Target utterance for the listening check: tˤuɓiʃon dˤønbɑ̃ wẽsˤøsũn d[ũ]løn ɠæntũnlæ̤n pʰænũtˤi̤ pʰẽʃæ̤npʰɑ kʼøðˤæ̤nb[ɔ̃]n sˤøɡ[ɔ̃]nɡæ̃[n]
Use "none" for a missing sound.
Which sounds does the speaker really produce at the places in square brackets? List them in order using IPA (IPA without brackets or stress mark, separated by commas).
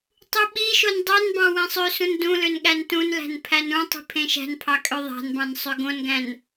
ũ, ɑ̃, õ, n